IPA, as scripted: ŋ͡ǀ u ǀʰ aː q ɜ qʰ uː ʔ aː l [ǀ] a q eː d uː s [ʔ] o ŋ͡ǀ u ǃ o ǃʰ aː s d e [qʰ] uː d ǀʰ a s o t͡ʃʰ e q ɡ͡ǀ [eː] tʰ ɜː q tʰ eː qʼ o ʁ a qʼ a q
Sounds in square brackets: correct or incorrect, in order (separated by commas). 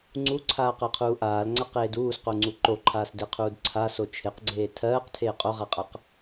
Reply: incorrect, incorrect, correct, correct